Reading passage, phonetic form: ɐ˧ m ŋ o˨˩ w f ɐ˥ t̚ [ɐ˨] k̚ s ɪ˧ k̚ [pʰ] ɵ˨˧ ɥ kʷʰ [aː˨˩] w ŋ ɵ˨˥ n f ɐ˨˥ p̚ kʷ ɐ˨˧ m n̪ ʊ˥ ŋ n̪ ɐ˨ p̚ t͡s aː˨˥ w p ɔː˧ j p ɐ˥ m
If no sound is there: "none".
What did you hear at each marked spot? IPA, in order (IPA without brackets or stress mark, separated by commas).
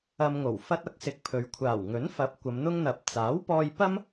ɐ˧, pʰ, aː˨˩